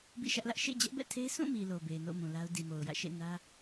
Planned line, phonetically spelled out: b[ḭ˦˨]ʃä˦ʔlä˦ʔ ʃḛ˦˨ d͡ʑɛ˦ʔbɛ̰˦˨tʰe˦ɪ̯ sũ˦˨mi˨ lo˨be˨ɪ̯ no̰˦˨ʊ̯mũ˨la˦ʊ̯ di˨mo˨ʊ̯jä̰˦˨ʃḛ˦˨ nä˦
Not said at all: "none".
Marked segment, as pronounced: ḭ˦˨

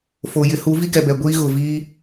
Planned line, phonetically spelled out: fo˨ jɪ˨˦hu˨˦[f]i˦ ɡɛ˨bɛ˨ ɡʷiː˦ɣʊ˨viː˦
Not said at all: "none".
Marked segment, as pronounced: v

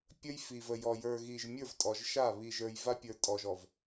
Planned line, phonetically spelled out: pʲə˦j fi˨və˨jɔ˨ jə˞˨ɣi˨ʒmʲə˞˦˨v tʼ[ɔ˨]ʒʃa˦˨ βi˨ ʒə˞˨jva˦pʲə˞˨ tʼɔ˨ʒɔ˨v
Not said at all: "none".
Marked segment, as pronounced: ɔ˨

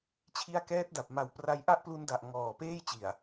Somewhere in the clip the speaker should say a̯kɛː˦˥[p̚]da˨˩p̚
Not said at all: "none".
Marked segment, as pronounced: t̚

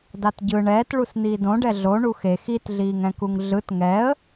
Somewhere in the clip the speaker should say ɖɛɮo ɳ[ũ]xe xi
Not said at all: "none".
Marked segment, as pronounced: u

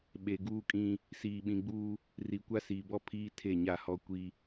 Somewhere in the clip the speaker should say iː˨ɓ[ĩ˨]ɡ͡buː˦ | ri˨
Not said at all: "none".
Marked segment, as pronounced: ĩ˨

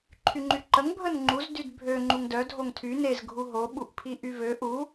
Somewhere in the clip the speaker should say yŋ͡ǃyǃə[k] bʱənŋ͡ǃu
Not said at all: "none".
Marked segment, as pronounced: ŋ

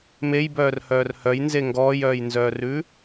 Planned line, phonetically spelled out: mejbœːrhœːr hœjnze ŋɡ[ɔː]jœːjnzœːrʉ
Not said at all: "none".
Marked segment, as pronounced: ɔː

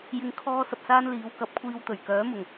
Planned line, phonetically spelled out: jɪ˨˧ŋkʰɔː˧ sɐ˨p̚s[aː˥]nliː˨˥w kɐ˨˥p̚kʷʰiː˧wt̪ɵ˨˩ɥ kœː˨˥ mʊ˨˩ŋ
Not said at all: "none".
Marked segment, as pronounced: aː˥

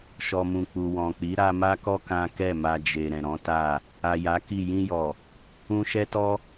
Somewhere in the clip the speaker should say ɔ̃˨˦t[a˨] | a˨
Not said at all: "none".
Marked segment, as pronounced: a˦˨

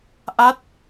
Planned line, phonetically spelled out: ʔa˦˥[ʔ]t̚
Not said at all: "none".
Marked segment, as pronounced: none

